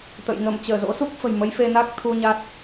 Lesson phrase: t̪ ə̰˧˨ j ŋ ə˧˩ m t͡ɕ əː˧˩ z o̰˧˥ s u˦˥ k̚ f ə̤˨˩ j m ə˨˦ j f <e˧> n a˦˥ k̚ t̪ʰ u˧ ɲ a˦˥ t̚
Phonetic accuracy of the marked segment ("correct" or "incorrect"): correct